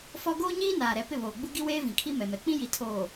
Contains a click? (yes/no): no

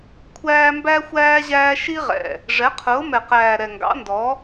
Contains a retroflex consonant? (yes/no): yes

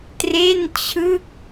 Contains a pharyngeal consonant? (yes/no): no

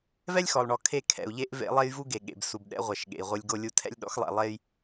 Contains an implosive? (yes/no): yes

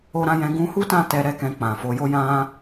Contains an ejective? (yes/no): no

